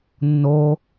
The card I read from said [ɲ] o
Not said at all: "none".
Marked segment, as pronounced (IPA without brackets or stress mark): nː